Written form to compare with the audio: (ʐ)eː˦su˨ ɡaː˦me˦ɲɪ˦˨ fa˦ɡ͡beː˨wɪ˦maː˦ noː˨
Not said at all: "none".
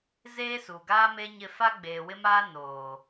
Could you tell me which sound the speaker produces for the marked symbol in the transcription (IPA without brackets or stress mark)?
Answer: z